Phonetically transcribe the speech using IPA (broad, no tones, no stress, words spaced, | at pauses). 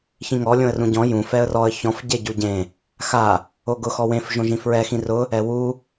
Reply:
çĩŋɔ lʲõə̯rũɟɔ̃ jũ fɛə̯rɔə̯ çɔ̃f ɟeɟuɟẽ | xa | oɡʊ xɔwẽf ʒõʒĩfɹɛ xĩrʊ | ɛwu